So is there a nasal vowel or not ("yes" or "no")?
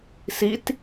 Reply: no